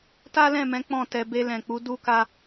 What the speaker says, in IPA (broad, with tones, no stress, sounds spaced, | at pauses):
t a˦ l ɛ̃˦˨ m ɛ̃˨˦ k͡p ɔ̃˦˨ t ɛ˧ b e˧ l ɛ̃˨ k͡p u˨˦ d u˦ k a˦